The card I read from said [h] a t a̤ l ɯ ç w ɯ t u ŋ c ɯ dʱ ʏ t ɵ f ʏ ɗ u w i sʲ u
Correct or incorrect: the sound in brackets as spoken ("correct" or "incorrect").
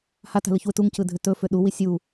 correct